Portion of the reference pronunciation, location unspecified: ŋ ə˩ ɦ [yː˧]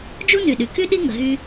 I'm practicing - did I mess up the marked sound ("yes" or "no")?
yes